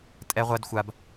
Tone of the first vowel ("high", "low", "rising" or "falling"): high